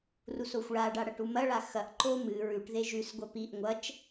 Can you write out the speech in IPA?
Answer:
r u s o xʷ ɭ a ɖ a ɽ ɐ ʈ u m ɐ ɭ a x ɐ ʔ ǃ o m ɨ ɹ ʉ ʈ ð e ʒ ʉ s ɡʷ ɐ p i ʔ ŋʷ ɐ t͡ʃ

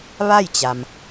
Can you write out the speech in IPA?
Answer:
ʋ a˥˨ j t͡ɕ a˩ m

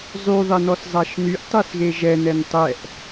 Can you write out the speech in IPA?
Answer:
zˤ y ðˤ e n ɔ s zˤ a ʃ n y ʔ tˤ e s ɣ e ʒ ɛ n ɛ n tˤ ɛ ʔ

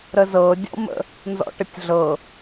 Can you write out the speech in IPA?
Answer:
ɾ ə z ɤ dʲ ɔ̰ m ə̰ | n z ɔ̰ ʈ ə tʲ ɮ ɤ

